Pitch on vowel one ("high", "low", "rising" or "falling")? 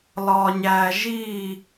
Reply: low